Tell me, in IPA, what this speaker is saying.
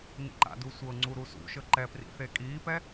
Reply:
n ḭ ǃ a̰ d u sʷ ɤ ŋ͡ǀ u ɾ u s ṵ ʃ ɤ ǃ ɛ p r ḭ θ e kʼ iː p ɛ

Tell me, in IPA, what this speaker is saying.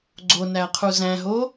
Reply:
ɡ͡ǀ o n æ qʰ u z æ̃ ɦ o

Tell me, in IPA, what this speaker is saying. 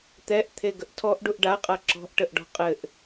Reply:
t̪ ɛ ʔ t̪ʰ e ɡ ə ʔ tʰ ɔ ʔ ɖ u ʔ ɖ a qʼ a ǁ ɔ̤ ʔ ʈ ə ʔ ɖ ɔ̤ qʼ ɘ ʔ

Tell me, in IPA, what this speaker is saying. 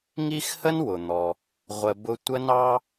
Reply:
ŋ i˥ x h ə˥ n w ʊ˩ n̪ ɔ˩ | ʁʷ ə˧ b ʊ˥ tʷ ə˥ n ɑ˥

